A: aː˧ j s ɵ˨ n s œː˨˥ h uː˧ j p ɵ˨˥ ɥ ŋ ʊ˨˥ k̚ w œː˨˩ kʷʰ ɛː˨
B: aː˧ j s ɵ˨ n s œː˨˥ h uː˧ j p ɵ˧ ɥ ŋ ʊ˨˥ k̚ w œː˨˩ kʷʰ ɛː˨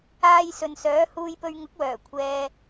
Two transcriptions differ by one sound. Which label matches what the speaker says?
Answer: B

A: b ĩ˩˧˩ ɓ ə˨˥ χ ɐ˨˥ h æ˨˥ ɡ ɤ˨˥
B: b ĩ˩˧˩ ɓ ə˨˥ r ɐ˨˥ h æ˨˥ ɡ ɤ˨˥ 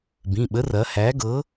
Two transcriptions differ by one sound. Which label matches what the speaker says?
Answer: B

